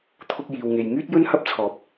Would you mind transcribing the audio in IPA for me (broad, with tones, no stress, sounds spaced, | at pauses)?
t̪ʰ ʊ˥ k̚ j iː˧ w ŋ e˧ j ŋ yː˥ t̚ j ɵ˥ n h ɐ˥ p̚ t͡sʰ ɔː˨ p̚